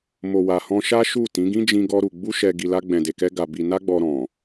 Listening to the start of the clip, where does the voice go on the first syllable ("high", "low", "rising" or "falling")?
low